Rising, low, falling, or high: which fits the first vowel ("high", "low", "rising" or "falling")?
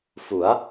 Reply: rising